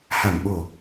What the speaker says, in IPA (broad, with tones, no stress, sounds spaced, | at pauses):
h a˧˩ m ɓ o˧˩˨